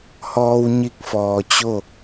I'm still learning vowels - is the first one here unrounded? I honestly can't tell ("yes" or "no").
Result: no